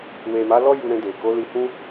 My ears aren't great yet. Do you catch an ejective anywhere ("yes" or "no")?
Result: no